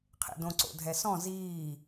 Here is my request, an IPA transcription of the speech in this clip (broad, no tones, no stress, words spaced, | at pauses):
qʰḛdõǀo̰ dʱɛsɔ̃ ziː